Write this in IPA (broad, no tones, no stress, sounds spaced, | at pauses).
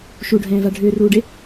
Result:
ʃ u ɖʱ ɛ̃ː v a ɖʱ ʏː r uː ɖ e